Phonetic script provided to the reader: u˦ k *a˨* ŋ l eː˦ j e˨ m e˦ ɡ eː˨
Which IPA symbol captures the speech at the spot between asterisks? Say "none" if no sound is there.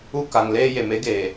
a˨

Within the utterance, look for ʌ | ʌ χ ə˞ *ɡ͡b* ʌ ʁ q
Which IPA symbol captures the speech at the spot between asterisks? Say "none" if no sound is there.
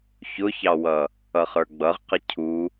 ɡ͡b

